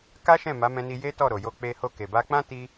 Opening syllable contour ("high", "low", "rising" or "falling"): high